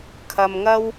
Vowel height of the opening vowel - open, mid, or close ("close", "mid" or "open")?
open